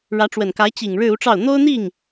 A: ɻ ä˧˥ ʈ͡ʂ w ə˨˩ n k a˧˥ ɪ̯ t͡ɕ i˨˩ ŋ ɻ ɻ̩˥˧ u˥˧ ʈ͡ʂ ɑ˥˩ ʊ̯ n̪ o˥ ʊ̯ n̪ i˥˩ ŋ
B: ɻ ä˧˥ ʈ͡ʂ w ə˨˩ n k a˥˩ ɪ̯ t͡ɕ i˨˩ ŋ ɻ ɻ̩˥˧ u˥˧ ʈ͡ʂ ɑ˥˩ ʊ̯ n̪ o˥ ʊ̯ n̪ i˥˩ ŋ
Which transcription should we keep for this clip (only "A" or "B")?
A